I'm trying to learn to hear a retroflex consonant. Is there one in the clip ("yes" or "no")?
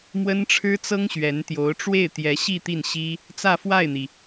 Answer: yes